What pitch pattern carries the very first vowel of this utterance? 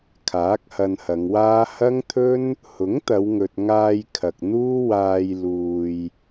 rising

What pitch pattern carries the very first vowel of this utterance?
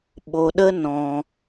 low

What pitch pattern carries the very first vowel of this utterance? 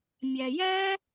low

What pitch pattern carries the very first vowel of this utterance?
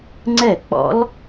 falling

